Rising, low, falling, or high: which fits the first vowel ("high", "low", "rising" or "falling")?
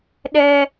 high